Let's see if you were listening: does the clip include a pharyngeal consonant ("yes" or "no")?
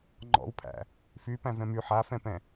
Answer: yes